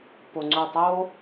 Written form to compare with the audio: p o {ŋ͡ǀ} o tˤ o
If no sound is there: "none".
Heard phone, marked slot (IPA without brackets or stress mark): ŋ͡ǀ